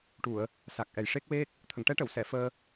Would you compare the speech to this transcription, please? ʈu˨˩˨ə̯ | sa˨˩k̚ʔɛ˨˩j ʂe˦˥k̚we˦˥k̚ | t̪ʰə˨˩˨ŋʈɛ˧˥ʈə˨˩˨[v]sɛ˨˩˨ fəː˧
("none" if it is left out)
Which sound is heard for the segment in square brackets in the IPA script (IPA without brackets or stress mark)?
w